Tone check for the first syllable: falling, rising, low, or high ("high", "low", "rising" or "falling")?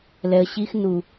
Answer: low